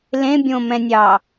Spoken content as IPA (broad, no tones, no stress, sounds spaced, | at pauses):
l ẽ bʲ õ m ɛ̃ nʲ ɑ